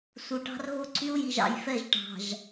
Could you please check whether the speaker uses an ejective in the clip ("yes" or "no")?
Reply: no